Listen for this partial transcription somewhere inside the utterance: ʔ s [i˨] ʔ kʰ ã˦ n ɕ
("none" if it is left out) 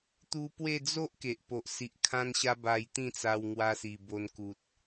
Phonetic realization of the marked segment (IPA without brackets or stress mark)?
i˨